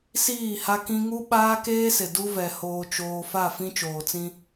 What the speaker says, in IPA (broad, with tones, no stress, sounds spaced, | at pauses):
s iː˦˨ h a˦ k ĩ˦ ŋ u˦ ɓ aː˦ k eː˦ s ɪ˨ d u˦ v ɛ˨ h oː˨ t͡ʃ oː˨ f a˦˨ f ĩ˦ t͡ʃ oː˨ t͡s ĩ˦